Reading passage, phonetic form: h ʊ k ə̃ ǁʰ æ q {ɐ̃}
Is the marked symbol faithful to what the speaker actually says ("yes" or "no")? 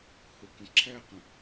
no